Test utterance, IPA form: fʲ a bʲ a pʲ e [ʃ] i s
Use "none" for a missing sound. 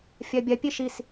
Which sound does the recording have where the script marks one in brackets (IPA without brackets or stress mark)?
ʃ